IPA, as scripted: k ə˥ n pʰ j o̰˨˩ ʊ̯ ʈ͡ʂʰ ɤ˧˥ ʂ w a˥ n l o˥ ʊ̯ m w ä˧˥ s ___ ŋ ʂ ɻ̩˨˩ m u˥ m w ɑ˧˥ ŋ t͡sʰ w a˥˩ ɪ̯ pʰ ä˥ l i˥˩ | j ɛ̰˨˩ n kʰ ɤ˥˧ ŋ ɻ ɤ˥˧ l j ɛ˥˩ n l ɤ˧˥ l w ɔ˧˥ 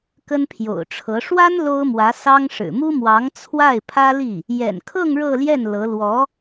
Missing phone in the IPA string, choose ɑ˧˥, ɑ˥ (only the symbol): ɑ˥